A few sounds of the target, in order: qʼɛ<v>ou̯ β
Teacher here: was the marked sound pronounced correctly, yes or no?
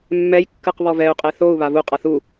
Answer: no